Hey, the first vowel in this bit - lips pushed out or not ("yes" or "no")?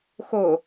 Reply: yes